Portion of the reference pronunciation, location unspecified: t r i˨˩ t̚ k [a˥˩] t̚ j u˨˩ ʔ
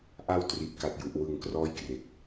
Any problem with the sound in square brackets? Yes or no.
yes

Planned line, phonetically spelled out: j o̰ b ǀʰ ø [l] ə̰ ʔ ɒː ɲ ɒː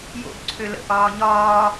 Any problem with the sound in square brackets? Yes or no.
no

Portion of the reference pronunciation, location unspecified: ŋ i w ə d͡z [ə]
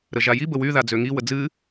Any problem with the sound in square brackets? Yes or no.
yes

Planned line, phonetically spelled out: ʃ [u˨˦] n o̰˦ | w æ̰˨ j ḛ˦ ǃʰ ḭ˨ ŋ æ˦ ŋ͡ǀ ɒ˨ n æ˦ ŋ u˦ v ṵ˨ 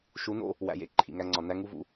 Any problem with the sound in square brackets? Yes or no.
no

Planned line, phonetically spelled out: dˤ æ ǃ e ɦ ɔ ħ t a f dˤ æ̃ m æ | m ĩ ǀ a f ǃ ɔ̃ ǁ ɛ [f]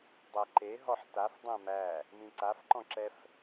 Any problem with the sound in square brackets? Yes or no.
no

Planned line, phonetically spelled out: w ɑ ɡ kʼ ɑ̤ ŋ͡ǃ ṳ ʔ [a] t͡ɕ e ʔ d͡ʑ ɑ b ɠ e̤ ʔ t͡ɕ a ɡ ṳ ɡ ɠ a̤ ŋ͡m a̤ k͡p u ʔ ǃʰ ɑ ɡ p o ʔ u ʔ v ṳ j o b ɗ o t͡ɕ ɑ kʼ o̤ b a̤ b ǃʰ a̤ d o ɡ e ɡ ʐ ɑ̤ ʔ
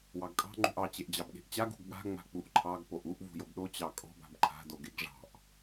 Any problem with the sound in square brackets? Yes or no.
yes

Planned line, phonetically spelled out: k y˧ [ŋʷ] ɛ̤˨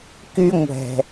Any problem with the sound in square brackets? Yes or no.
no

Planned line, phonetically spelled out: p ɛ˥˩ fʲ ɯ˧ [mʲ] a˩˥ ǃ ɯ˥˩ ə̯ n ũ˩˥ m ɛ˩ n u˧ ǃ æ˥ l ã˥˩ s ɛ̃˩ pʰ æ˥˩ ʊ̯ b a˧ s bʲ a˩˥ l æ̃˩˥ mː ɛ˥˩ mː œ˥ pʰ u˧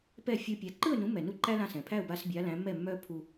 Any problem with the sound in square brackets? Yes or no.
yes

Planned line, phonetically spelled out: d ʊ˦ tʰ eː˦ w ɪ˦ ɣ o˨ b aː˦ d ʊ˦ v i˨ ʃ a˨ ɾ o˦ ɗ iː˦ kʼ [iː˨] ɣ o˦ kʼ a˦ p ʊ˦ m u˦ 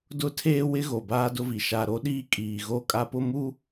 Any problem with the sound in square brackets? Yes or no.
no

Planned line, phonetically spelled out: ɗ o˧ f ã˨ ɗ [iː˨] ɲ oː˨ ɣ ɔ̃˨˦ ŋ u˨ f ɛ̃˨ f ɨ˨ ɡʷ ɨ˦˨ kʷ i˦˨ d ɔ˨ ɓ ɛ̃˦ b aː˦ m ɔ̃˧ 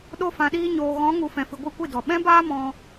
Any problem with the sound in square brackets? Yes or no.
yes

